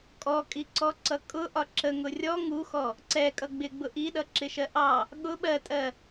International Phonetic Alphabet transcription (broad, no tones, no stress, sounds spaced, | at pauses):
kʼ ɔ kʼ i ǀ ɔ ǀ ʌ kʼ ʊ ʔ ɒ ǁ ə ŋ ʊ rʲ ɔ ŋ u x ɔ | ǀ ɛ kʼ ʌ ɡ͡b ɪ ɡ͡b ʊ ʔ i ɗ ʌ ǁ ɪ ʃ ɜ ʔ ɑ | ɠ ʊ ɓ ɜ tʼ ɜ